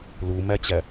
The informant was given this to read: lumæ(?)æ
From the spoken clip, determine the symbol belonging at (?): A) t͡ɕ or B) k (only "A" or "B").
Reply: A